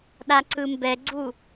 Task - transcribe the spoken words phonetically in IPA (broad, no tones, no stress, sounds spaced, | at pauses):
ɗ a ǀ ɯ m b ɛ ɡ͡ǀ u